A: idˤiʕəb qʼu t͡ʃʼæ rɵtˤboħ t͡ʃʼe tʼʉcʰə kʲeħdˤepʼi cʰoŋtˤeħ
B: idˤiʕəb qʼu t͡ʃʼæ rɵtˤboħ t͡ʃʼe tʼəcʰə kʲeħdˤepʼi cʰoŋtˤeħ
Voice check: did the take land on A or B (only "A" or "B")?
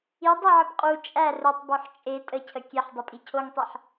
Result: B